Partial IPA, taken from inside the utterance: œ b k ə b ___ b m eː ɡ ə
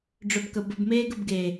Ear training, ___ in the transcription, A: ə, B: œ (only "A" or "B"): A